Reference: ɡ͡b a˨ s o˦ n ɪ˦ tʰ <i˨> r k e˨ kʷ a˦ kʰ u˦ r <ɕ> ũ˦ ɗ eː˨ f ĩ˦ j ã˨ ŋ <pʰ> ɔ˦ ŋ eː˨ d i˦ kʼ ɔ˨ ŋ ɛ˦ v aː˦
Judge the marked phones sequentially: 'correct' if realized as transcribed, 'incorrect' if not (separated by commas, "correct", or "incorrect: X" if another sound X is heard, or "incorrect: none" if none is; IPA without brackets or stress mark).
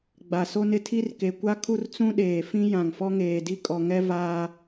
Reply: incorrect: i˦, incorrect: t͡s, incorrect: f